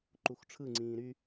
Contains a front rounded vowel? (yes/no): yes